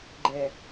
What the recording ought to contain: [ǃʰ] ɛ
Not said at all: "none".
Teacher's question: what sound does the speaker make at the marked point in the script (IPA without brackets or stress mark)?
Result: ɡ͡ǃ